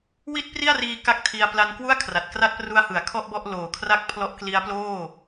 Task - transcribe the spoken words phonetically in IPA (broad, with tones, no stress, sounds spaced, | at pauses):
w i˥˩ t̚ p r i˥˩ a̯ r iː˧ k a˥˩ k̚ tʰ i˧ a̯ p l a˧ n k w u˥˩ a̯ kʰ r a˨˩ t̚ k r a˥˩ t̚ p r u˦˥ a̯ h ɯ˨˩ a̯ kʰ ɔ˥˩ ʔ b ɔ˥˩ ʔ l oː˨˩ kʰ r a˦˥ k̚ pʰ l ɔ˦˥ ʔ k l i˦˥ a̯ p l oː˥˩